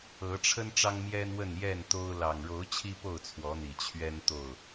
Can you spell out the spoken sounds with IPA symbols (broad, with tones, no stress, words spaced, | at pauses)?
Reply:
ɤ˨˦ʈ͡ʂʰə˦n ʈ͡ʂɑ˦ŋmjɛ˦nwə˥˨n jɛ˥˨n t̪o˦ʊ̯ lɑ˨˩ŋɻo˨˦ʊ̯ t͡ɕʰi˦po˥˨ʊ̯t͡sʰwɔ˨˦n̪i˨˩ t͡ɕʰɥɛ˦nt̪o˥˨ʊ̯